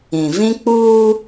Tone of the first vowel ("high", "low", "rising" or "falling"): low